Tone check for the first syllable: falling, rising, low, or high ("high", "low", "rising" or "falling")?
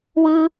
high